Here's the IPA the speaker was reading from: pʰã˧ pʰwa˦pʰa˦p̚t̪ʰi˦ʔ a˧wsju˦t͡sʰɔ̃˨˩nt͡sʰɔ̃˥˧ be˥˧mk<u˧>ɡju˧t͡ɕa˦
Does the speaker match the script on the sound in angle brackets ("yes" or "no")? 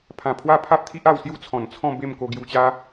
no